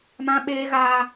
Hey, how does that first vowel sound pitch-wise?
high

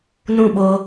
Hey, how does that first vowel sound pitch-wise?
falling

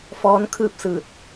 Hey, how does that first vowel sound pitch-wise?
rising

